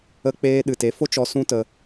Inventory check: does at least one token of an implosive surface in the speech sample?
yes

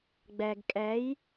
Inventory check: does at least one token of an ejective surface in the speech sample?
yes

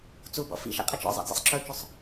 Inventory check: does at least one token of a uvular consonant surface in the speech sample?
yes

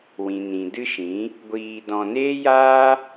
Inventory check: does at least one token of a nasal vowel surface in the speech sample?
yes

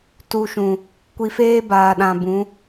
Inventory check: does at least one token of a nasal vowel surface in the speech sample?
yes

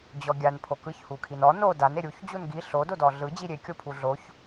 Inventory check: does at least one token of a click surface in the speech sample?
no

